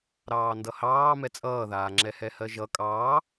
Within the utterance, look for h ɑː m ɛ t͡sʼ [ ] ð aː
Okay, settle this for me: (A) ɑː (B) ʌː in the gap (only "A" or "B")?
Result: B